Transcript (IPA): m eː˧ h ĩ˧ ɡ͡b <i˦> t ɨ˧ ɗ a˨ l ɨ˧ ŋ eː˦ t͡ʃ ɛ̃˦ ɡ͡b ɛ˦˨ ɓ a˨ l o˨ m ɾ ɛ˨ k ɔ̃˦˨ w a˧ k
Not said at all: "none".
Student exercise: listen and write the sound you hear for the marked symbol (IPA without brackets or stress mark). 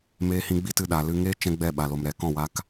i˦